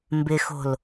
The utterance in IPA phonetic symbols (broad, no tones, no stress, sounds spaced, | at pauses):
m b ɪ x o̤ l